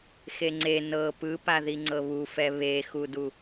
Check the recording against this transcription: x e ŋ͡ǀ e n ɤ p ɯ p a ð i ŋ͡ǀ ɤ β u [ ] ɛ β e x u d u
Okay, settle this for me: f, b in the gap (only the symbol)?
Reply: f